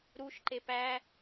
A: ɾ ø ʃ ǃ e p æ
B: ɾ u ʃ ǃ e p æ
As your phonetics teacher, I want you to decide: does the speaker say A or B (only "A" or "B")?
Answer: B